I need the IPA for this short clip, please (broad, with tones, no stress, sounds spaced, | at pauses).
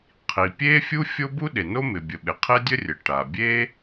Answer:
qʰ i˩ pʲ e˥ fʲ u˥ fʲ o˥ b u˥ ɗ e˩ n o˥ m ɪ˩ bʲ ə˩ ɓ ɪ˩ qʰ ɪ˥ dʲ ə˥ rʲ ə˩ ʈ a˩ bʲ e˥